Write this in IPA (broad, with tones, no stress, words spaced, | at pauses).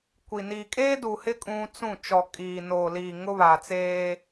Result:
kʷi˨ niː˨kʼeː˦du˨hɪ˦ kʼũ˦ t͡sũ˦˨ t͡ʃɔ˨kʼiː˨noː˨liː˨ ŋʊ˦βa˨t͡seː˦